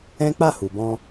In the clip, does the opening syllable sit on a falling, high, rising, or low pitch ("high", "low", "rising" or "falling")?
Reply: high